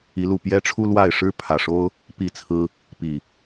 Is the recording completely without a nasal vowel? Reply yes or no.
yes